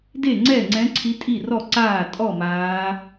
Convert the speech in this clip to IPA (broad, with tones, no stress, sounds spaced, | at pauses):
d e˥˩ ŋ͡ǀ ɛ˥˩ ŋ͡ǀ ɛ̃˨˦ ǀʰ i˨˦ tʼ i˥˩ r ɔ˥˩ ǀ aː˥˩ tʼ ɔ˥˩ m aː˨˦